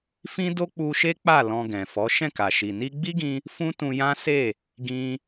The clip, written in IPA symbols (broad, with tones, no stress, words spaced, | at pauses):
fĩ˦do˦k͡pu˧ʃe˦ k͡pa˦˨ lɔ̃˧ɡɛ̃˨fɔ˨˦ ʃɛ̃˦˨ka˨ʃi˨ ni˧ɡ͡bi˦ɡĩ˧ | fũ˦tũ˧jã˦ se˦˨ | ɡĩ˧